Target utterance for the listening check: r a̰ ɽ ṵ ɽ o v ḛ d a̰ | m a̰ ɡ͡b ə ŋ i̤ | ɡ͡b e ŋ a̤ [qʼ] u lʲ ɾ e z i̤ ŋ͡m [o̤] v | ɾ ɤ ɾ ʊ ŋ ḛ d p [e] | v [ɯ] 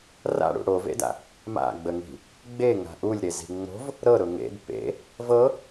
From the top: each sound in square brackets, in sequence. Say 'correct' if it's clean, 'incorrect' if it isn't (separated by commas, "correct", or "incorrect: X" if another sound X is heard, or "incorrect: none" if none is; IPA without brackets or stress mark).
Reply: incorrect: ʔ, correct, incorrect: ḛ, incorrect: ɤ